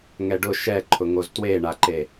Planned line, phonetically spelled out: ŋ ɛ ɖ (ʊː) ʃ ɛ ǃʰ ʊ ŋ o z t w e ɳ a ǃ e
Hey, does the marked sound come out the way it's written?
no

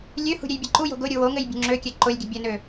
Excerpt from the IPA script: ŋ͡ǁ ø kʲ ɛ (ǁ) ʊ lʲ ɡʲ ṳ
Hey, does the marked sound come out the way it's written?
no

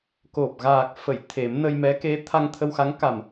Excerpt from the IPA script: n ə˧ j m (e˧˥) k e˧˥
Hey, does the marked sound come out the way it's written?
no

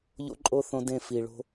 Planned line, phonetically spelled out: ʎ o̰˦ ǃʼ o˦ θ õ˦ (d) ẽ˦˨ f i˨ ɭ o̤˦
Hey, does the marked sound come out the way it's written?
yes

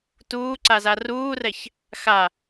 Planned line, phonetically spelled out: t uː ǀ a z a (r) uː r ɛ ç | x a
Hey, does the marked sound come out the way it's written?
yes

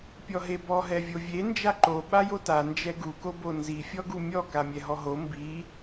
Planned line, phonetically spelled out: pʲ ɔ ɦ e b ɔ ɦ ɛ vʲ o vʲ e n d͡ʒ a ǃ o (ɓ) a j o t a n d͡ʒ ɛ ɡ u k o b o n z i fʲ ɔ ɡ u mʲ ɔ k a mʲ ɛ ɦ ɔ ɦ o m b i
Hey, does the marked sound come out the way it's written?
yes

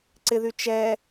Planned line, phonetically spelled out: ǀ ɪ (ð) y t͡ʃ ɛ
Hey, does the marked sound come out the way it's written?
yes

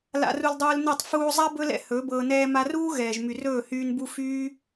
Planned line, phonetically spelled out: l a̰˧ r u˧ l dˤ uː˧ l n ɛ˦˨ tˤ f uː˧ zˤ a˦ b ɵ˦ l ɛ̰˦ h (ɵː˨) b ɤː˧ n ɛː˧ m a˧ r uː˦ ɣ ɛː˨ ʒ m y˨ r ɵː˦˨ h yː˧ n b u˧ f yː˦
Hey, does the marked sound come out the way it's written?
no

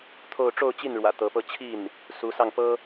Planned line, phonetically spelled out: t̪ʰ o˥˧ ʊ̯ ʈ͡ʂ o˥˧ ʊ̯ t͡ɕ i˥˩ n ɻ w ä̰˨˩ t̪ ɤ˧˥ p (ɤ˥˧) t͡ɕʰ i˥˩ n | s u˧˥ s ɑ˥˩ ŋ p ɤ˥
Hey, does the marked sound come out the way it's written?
yes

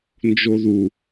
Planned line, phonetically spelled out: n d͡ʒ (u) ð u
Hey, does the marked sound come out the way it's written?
no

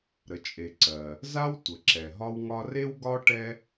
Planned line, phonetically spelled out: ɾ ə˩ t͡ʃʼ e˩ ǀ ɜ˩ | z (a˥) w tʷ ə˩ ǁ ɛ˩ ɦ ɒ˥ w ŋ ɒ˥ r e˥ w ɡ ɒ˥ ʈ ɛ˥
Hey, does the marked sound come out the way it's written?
yes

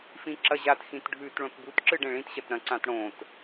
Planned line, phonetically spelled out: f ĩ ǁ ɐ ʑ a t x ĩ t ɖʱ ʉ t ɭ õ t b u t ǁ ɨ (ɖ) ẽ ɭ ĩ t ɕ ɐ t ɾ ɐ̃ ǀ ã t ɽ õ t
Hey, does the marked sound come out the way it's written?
yes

